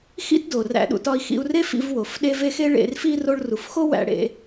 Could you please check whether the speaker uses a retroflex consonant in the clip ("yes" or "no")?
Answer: yes